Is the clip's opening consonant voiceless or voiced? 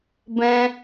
voiced